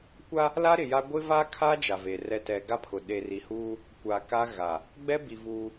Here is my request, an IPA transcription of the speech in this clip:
kʷ a˦ | l a˦ ɾ ɪ˨ j a˦ ɡʷ ɪ˦ v a˦ kʰ a˦ d͡ʒ a˨ v e˨ r ɛ˦ t ɛ˦ ɡ a˦ pʰ ʊ˨ ɗ e˨ r i˨ h uː˦ | kʷ a˨ k a˦ ɣ a˨ | ɡ͡b ɛ˦ b i˨ v uː˦

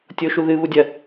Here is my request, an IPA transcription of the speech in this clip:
tʲ o ʃ u ð ɨ β u dʲ ɐ

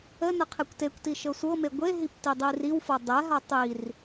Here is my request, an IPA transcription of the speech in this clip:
ə n ə qʰ e kʷ t e kʷ t i ʃ ɤ sʷ ɤ m e ɡʷ e ɦ i p t i dˤ i r i w f ɤ dˤ ɛ ɦ a tˤ i r

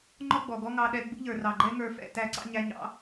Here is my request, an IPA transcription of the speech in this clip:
ŋ͡ǃ ɔ˦ ɡ͡b ɔ˨ ɡ ɔ˦ ŋ ɑ˧ ɗ ɛ˧ ɡ͡b ṵ˦ ʎ ə˞˨ r ɑ˨ ɡ͡ǃ ɛ˦ ŋ ə˞˧ f ɛ̰˧ t æ˨˦ ǀ ɑ̰˧ ɲ æ˧ ɲ ɑ̰˦

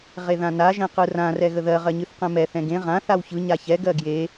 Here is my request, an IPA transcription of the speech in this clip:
ʁ e ð ã n a ʒ ɛ̃ q ɯ r ã r ɛ ɣ ə ð ɜ ʁ ɜ ɲ ɨ θ q ɛ̃ m ɛ θ ɛ̃ ɡ ẽ ʁ ã θ a w ç ɯ ɲ a ç ɛ ɡ ɜ ɡ j e

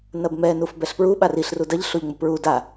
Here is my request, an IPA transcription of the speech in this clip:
n ɐ b m ɛ n u f b ɛ ɬ p ɹ u ɓ a r i ɬ r u d ɐ ʎ ɬ o ʎ ŋ͡m u p ɹ u d a

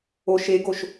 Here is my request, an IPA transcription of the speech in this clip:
o ʃ e ɡ o ʃ

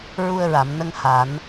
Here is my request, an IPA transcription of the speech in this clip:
ɹ u˧ ə̯ ɹ a˨˩˨ m n ə˧ ŋ h a˨˩˦ n

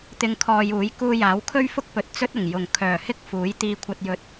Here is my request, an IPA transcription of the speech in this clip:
t̪ ɪ˧ ŋ kʰ ɔː˧ j uː˨˥ j k uː˧ j aː˨˥ w kʰ ɵ˥ ɥ f ʊ˥ k̚ p ɵ˨ t̚ t͡s ɵ˥ t̚ ʊ˨˩ ŋ j ʊ˨˩ ŋ kʰ œː˨˩ h ɪ˥ k̚ f uː˨˥ j t̪ iː˧ kʷʰ ɐ˧ t̚ j ɵ˧ t̚

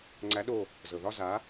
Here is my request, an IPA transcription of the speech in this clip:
ŋ͡ǀ æ˨˥ ɗ o˧˩ | z ɤ˩ ð ɒ˥˧ z a˨˥

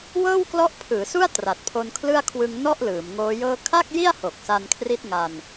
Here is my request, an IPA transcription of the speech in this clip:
w ɤː˥˩ w k l ɔ˦˥ ʔ pʰ ɯː˩˦ s u˥˩ a̯ t r a˨˩ t̚ pʰ o˧ n kʰ l ɯ˥˩ a̯ kʰ w ɯ˧ ŋ n ɔ˥˩ ʔ l ɯː˩˦ m ŋ oː˦˥ j ɤː˥˩ kʰ a˥˩ k̚ j i˥˩ a̯ h o˨˩ k̚ s a˧ n kʰ r i˦˥ t̚ ŋ a˧ n

